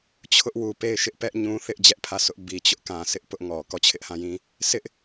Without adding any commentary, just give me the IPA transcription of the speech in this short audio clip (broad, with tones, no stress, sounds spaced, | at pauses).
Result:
t͡ɕʰ ʊ˦ ʔ w u˨ p e˦˨ ɪ̯ ʃ ɪ˦ ʔ p ɛ˦ ʔ ɲ ũ˦ θ ɪ˦ ʔ d͡ʑ ɛ˦ ʔ pʰ ä˦˨ sʰ ʊ˦ ʔ b i˨ t͡ɕ ʊ˦ ʔ k ã˨ s ɪ˦ ʔ p ʊ˦ ʔ ŋ ɔ˨ k ɔ˦˨ t͡ɕʰ ɪ˦ ʔ h ã˦˨ j ĩ˦ | s ɪ˦ ʔ